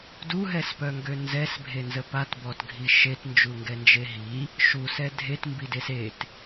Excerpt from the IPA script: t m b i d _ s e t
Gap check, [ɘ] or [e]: e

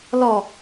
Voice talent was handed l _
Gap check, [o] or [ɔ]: ɔ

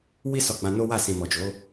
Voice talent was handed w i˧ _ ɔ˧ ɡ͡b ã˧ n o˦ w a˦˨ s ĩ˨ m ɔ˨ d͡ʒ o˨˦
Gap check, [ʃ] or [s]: s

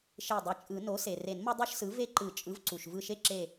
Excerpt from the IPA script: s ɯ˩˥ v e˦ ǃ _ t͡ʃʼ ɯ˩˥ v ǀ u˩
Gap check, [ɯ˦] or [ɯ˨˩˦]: ɯ˨˩˦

